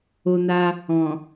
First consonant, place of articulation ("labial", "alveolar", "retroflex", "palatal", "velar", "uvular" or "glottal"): alveolar